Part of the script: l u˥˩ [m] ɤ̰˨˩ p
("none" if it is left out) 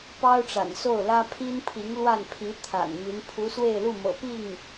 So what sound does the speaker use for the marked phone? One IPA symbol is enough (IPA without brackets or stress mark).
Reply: m